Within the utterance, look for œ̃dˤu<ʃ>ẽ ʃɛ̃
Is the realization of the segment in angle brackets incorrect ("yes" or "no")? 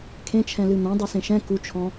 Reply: yes